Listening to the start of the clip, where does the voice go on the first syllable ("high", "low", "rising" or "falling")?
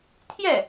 falling